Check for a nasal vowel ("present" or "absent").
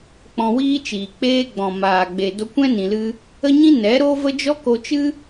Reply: present